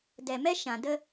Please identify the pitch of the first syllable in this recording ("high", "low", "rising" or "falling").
low